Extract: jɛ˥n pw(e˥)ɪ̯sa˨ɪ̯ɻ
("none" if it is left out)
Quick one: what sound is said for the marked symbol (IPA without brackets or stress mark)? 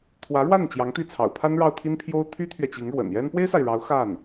e˥